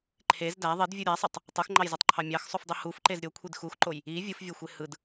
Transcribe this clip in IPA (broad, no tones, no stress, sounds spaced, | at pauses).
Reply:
ǃʰ e z d æ ðˤ i d vʲ u ɾʲ æ sˤ ɯ tˤ | tˤ ɯ x ŋ͡ǃ ɑ j z e tˤ ǃʰ ɑ mʲ ɑ x sˤ u f dˤ i h u f ǃ e z ɾʲ o kʷʰ i d x u x ǃ o j | i vʲ ɯ f vʲ o xʷ e h ɯ d